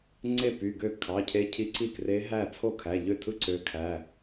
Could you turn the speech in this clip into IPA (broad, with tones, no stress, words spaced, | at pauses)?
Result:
ŋ͡ǀe˥˩py˩˧˩ ɡø˥˩ kʰɑ˩˧˩cʰe˧˥cʰi˧˥ǀi˥˩ kre˧˥ɦæ˥˩ t͡sʰo˥˩kʰæ˩˧˩ʎø˥˩tʰɯ˥˩ ǀø˧˥kʰæ˩˧˩